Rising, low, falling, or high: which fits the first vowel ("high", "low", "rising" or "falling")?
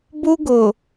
high